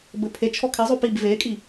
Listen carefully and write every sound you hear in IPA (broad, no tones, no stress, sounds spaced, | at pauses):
b ɘ pʰ e t͡ʃʰ ɔ kʰ ɛ zˤ o p i b v e kʼ i